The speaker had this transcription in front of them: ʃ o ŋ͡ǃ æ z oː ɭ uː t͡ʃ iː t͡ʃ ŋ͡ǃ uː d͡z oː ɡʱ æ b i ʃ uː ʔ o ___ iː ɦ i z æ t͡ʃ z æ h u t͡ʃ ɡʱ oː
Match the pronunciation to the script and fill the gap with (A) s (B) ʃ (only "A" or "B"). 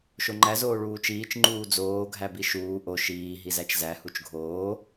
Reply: B